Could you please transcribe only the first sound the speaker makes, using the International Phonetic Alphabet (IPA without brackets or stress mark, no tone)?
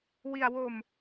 w